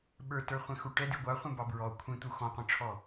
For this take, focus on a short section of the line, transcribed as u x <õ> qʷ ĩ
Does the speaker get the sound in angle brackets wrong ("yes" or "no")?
yes